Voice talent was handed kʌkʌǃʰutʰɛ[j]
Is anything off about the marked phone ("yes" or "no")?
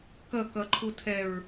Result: yes